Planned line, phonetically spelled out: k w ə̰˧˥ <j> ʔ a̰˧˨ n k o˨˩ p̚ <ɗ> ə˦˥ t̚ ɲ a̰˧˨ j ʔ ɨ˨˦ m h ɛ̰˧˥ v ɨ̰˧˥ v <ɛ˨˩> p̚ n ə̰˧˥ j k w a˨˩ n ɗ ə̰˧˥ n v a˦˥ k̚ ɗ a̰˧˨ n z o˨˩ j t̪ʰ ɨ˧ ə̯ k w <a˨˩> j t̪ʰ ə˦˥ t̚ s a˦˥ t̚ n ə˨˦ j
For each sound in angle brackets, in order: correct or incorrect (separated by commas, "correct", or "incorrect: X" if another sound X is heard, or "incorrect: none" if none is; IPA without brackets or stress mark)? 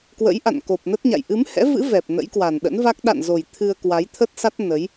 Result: correct, incorrect: n, correct, incorrect: a˨˦